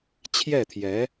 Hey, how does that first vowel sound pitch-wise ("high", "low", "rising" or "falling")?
falling